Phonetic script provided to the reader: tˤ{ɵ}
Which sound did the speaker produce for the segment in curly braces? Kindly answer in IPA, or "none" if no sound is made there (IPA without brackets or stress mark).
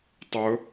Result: ɵ